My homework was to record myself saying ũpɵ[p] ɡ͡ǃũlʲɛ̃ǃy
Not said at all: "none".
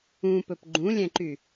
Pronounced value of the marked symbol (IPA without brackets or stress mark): p